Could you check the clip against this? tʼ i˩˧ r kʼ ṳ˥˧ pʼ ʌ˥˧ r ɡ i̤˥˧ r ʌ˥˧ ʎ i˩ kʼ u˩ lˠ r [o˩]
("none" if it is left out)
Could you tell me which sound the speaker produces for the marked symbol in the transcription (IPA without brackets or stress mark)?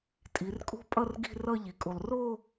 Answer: o˥˧